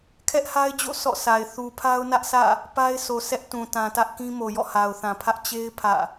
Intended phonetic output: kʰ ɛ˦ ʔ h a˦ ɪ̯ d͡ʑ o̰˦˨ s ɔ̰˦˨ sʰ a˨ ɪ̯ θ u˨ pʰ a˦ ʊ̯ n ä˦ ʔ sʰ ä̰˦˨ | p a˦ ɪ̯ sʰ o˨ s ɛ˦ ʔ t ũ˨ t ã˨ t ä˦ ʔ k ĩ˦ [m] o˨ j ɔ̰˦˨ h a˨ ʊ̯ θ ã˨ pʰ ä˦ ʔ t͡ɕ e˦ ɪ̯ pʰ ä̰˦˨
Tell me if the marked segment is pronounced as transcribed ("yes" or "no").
yes